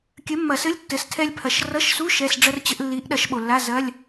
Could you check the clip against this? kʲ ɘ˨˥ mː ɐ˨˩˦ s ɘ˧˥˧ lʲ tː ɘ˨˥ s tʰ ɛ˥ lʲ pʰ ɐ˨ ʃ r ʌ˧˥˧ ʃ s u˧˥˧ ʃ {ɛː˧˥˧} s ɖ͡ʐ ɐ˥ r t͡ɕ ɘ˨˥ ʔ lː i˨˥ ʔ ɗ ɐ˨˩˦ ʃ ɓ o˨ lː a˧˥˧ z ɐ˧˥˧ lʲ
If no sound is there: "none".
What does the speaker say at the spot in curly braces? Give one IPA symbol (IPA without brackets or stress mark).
ɛ˧˥˧